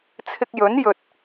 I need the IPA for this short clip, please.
t͡sʰ ɪ˧ k̚ j ɵ˨˥ n j ɵ˨ t̚

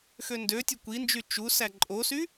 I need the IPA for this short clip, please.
x ø n d ø tʲ ø kʷ i n d͡ʒ y t͡ʃ u s æ ǃʼ o s y

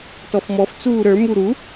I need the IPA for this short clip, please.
t ɔ f m ɔ f t͡s uː ɾ ə˞ m u ɾ u

